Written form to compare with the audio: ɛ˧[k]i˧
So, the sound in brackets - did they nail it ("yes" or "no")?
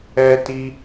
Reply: no